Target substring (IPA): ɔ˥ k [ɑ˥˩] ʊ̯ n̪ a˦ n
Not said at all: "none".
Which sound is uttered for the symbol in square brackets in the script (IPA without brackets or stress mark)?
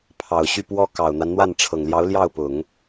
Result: ɑ˨˩